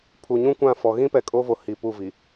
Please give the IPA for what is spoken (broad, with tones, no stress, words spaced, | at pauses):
pʰu˨ɲũ˦kʷã˦˨fɔ˨ ɣĩ˦ pɛ˨kʼo˦vo˨ hi˨pu˦˨vi˨